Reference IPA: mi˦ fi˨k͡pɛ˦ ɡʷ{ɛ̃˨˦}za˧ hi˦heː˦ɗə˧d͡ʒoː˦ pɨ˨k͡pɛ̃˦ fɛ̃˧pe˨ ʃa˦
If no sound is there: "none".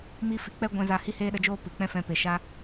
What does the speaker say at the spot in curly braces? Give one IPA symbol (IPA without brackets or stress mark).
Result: ɛ̃˧